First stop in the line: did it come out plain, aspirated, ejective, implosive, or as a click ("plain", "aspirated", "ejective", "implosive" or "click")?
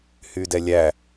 plain